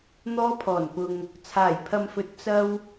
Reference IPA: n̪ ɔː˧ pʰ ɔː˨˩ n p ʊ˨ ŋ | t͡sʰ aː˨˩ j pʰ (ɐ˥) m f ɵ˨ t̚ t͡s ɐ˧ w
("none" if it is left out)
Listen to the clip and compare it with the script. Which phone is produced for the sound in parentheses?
ɐ˨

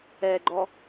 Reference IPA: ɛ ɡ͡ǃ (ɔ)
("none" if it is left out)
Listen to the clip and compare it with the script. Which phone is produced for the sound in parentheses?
ɔ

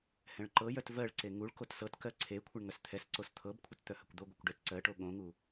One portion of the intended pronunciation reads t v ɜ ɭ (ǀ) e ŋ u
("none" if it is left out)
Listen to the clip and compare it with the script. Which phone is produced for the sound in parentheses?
ǀ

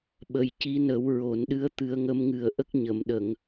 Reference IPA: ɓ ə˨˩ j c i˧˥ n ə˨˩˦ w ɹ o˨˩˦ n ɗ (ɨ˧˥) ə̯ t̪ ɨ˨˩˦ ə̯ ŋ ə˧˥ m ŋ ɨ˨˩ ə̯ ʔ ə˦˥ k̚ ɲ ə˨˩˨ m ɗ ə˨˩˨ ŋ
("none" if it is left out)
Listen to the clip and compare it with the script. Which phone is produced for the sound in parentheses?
ɨ˧˥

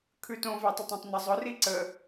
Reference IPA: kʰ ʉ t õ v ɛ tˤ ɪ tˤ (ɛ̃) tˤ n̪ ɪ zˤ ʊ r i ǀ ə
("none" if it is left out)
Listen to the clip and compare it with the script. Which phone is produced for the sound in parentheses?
ɛ̃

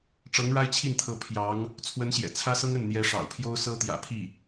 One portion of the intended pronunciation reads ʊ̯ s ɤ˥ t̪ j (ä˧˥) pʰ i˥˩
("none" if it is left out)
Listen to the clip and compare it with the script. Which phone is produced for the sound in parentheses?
ä̰˨˩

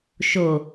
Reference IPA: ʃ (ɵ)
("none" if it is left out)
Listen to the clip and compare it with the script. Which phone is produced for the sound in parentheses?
o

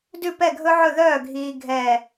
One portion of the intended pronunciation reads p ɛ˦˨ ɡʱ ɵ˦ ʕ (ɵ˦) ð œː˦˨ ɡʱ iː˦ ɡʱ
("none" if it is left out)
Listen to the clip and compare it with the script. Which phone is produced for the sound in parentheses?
ɵ˦˨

